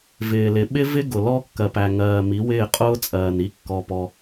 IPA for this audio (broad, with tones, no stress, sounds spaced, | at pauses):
v ɪː˨ l ɪ˨ ɓ ɪ˦ v ɪ˦ ɡ ʊ˨ l ɔ˦ kː ɜ˨ p æ˨ ŋ ɜː˨ m i˨˦ w ɪː˦˨ qʼ ʊː˦ t͡sʼ ɜː˨ n i˦ kː ɔ˦ p ɔ˦